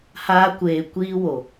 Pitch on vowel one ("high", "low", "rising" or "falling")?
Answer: high